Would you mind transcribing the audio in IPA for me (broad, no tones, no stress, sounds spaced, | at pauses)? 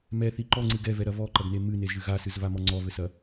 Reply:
m ɛ θ i ǃ ɔ ŋ͡ǀ ɨ ɡ ɛ v ɛ ɾ ɐ v ɔ ǃ ɐ ɡ n e m ɨ n e z ʒ ɨ ɣ a s ɨ z v a m ɔ ŋ͡ǀ ɔ v ɘ s ɐ